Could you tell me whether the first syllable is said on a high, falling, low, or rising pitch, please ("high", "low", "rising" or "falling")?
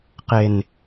low